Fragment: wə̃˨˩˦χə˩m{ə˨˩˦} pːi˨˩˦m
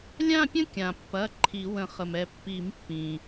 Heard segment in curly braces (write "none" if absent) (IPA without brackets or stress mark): ɛ˨˩˦